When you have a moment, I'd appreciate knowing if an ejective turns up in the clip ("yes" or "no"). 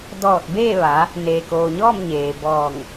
no